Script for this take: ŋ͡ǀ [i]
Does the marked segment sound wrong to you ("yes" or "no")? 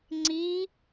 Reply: no